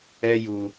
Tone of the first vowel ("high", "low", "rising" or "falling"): high